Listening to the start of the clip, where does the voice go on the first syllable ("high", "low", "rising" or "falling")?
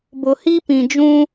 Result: low